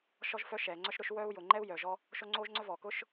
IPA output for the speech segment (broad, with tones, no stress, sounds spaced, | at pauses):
ʃ ɔ˦ ʒ f œ˦ ʃ ɛː˩ ŋ͡ǀ œ˦ ʃ ɾ ʊ˦ ʃ w œ˥ u̯ j ʊː˩ ŋ͡ǃ ɛː˥ u̯ j œː˩ ʒ ɔ˦ | ʃ o˦ ŋ͡ǀ oː˥ ʒ ŋ͡ǀ œ˥ v ɔː˩ k ʊː˥ ʃ